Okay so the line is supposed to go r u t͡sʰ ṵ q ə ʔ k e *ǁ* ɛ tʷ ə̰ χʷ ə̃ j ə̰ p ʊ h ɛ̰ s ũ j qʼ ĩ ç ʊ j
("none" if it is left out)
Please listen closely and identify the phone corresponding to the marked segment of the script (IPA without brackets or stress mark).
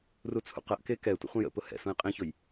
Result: k